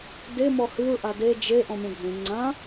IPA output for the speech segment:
d e m ɔ h ɨ ɹ ʔ a d e d͡ʒ e ʔ ɔ̃ mʲ ɔ̃ ɡʱ ẽ ŋ͡ǀ ã

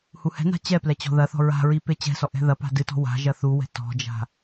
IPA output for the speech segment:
h u h ɛ̤ n a̤ t͡ɕ ɛ p l ɛ t͡ɕ ɔ̤ ð ɐ θ ɔ̤ ɹ a̤ ɹ i p e t͡ɕ ɛ̤ s ɔ ʔ ɛ̤ ð ɐ p a̤ d ɨ t ɔ̤ w a̤ ʒ ɐ θ u w ɛ̤ t ɔ̤ d͡ʒ a̤

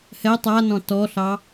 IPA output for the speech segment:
h ɛ tˤ a n ɔ̃ t ɔ ɬ ɑ

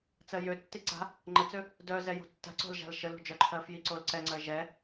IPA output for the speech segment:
t͡s ɜ j ø tː i ǀ a̤ | ŋ͡ǃ ə t͡s ø | d œ z ɛ j o̤ tː a̤ ǀ o̤ l ʒ a̤ l ʃ ə l o̤ d͡ʒ œ ǃʰ ɜ f j i ǀ o l ǀ ɛ ŋ͡ǀ ɜ ʒ ɛ

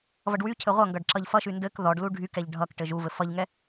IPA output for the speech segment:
v ʌ ɖ w y cʰ ɘ ʁʷ ʌ ŋ ɡ ʌ ɖ ǁ ʌ ʎ f ʌ ʃ y n d ɘ k ð ɔ ɖ l u ɖʱ y k ɛ ʎ ɖʱ ʌ k ʈ ɘ ʒ u v ɘ f ʌ ʎ ŋ ɛ

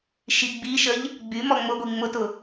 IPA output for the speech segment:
ʃ i ɡ͡b i ʃ ə ʎ | ɡ͡b y m ɔ ŋ͡m ʊ ɡʷ i ŋ͡m ʊ t ʊ

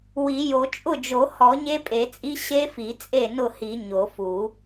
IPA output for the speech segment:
w i˨˩˦ j o˨˩˦ t͡ʃʼ ʊ˥˩ d͡ʒ o˨˩˦ h ɔ˨˩˦ ɲ e˦˥ pʼ e˨˩˦ t͡sʼ i˦˥ ɕ e˦˥ f i˨˩˦ t͡sʼ e˥˩ n ʊ˥˩ h i˨˩˦ ɲ o˨˩˦ f u˨˩˦

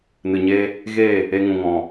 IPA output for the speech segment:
n ɨ˨ ɲ eː˧ | ɣ eː˦˨ | e˧ ŋ ũ˨ ŋ ɔ̃˨

